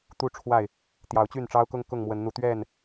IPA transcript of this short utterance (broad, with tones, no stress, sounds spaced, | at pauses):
t̪ u˥˨ ʈ͡ʂʰ w a˥˨ ɪ̯ | t̪ j ɑ˨˦ ʊ̯ t͡ɕ y˥˨ n ʈ͡ʂ ɑ˦ ʊ̯ k ʊ˦ ŋ k ʊ˥˨ ŋ m w ə˨˦ n n̪ u˨˦ t̪ ɥ ɛ˥˨ n